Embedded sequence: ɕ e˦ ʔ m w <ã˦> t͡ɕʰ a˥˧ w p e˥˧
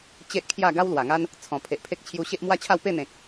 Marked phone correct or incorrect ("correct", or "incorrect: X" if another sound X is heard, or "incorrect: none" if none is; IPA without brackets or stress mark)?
incorrect: a˦